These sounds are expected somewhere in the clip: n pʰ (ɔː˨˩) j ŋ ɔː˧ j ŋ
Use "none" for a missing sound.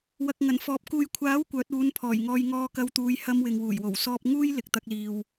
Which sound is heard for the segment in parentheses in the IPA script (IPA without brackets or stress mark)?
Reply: ɔː˨˩